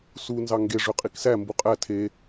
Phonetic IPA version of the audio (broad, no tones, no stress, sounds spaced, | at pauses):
s u n z ɑ ŋ ɡ e ʐ ø qʼ i k s æ m b u qʼ æ tʰ e